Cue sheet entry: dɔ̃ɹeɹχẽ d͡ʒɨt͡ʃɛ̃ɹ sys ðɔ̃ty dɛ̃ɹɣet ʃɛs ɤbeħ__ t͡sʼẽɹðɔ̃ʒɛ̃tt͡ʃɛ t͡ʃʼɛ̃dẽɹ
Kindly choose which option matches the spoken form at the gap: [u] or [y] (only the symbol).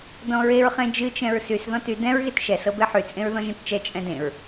y